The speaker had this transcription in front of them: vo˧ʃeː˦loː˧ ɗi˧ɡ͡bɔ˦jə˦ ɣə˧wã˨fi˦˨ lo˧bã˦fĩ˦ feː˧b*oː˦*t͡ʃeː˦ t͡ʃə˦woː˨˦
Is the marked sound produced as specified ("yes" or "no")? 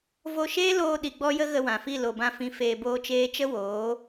yes